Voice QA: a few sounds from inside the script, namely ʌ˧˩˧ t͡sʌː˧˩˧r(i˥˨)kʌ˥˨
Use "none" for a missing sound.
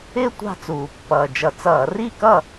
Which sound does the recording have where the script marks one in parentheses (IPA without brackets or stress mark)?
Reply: i˥˨